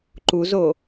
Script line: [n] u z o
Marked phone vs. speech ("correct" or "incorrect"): incorrect